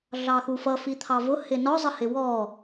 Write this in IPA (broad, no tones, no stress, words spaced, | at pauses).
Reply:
ɮɑxufʌ fit̪ʰɑvʊ hɪnɔ zˤəhɪwɔ